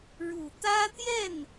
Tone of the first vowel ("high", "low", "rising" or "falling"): low